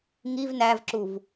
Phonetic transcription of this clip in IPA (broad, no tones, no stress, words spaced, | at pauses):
ŋiv nævǁuv